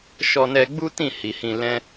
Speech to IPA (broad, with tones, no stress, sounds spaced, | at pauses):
ʃ ɔ˧ n ɛ˧ ɡ͡b u˦ t ĩ˦˨ h i˨ h ĩ˧ l ɛ̃˦